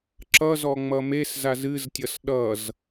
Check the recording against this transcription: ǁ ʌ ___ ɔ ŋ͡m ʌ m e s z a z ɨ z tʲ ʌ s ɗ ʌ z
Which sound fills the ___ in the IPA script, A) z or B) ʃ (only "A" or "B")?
A